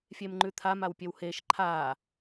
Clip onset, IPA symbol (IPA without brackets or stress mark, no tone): fʲ